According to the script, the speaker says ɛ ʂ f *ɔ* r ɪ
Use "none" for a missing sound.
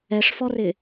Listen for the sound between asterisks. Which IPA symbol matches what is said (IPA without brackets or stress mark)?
ɔ